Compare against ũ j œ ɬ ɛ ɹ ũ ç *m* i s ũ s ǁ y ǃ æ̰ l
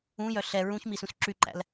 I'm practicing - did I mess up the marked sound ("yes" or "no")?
no